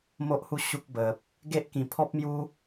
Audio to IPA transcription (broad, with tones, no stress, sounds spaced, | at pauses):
m o˦ ʔ h u˦ ɕ u˦ k̚ b ə˨ p̚ | ɡ e˦ ʔ k ĩ˧ pʰ ɔ˦ p̚ m j u˦